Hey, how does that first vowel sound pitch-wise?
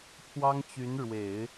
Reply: high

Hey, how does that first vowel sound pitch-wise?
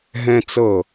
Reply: high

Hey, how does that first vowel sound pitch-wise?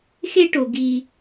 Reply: high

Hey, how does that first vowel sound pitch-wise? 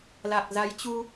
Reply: low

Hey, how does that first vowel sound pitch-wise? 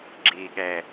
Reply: low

